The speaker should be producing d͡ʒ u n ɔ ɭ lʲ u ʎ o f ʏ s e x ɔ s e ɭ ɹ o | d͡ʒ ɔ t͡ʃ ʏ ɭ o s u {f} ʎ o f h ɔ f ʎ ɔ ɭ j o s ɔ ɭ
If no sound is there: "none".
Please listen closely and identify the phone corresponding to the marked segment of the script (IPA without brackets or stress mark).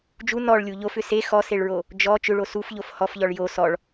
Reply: f